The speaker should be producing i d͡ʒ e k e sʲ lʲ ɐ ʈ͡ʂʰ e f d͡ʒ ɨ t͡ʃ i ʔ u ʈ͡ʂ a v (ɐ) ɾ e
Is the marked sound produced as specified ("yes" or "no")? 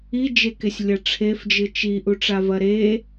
yes